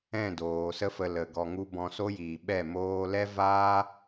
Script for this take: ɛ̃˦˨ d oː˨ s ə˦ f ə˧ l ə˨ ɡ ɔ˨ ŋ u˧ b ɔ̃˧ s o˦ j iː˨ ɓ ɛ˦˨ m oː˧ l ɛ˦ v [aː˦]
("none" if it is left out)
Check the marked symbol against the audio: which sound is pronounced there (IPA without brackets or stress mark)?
aː˦